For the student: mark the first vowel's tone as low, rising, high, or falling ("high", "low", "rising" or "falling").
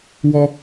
high